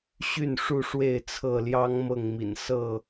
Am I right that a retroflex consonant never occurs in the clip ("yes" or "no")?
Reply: no